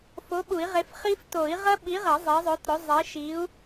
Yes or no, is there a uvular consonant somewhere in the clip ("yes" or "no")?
yes